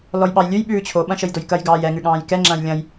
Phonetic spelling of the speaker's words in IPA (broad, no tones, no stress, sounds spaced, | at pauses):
l ɔ j ɓ ɑ j lʲ ʉ j ɓ ʉː t͡ɕʰ o ɓ ɐ̃ ʃ ə j d o j k ɐ j ɡ ɑː j ɛ ŋ ʉ ɠ ɑ̃ː j k ɛ ŋ͡ǁ ɐ̃ː j lʲ ɐ̃ j